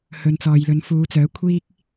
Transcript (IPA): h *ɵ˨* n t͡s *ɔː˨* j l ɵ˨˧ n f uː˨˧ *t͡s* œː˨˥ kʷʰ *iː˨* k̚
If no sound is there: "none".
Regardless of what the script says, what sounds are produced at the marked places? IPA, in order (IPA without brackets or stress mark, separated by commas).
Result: ɵ˨, ɔː˨, t͡s, iː˥